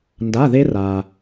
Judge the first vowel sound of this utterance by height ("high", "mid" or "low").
low